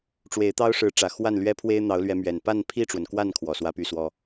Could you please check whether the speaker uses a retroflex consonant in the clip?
yes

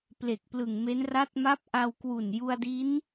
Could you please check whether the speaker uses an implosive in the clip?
no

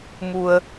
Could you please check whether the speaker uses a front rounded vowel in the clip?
no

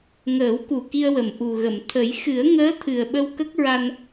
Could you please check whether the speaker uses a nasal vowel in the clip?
no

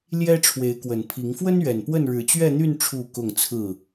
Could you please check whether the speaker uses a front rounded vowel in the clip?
yes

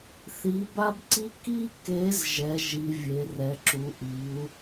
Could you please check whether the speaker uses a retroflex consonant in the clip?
no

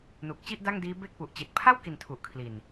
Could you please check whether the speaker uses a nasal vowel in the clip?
no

